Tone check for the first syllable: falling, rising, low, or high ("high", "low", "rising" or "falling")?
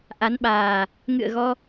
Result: rising